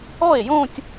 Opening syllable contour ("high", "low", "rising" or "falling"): falling